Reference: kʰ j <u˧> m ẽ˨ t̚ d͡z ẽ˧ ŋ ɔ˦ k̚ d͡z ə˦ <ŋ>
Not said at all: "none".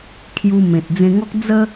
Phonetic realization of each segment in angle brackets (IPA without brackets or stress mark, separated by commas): u˧, none